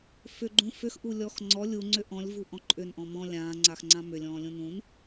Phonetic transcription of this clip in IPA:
fʏɡ͡ǃũ fʏxʔu lʲɔxŋ͡ǀɔ lʲuŋ͡ǀʏ ʔɔ̃lʲ vuʔɔ̃ǃʼʏn ʔɔ̃mɔ̃ lʲãːŋ͡ǀax ŋ͡ǀãmʏlʲɔ̃ː lʲũnũn

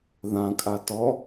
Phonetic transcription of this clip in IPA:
ðãkʼa tɔ

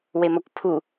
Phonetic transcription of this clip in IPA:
wemɐkʷpʰu

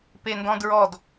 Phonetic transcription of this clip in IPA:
pendɔ̃dɹɔd

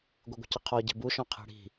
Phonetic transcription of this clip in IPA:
ɡʷɨɡʷə̤cəqʰɔ ɟɛ̤buʃɔ̃ qʰi̤ɽi̤

